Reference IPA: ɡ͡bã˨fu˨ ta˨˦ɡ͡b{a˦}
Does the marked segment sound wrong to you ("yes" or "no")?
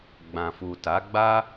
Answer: no